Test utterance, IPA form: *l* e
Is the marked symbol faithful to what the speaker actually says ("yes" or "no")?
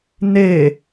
no